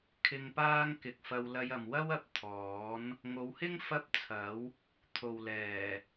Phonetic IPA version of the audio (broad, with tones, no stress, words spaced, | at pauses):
kʰɪ˧ŋpaː˥ŋ kɪ˨k̚ fɐ˧w lɐ˧jɐ˨mwɐ˥wɐ˨p̚ t̪ʰɔː˨˥n | ŋo˨˧whɪ˥ŋ fɐ˥p̚t͡sʰɐ˨˥w | t̪ʰo˨wlɛː˨˩